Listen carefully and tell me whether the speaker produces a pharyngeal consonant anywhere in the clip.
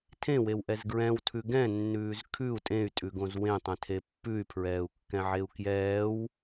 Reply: yes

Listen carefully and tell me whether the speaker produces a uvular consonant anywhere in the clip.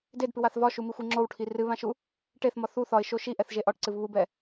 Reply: no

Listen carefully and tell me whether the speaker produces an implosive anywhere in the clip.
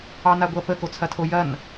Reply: no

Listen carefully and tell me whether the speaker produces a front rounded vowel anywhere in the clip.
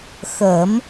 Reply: no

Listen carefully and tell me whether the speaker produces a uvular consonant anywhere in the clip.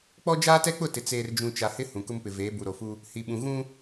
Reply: no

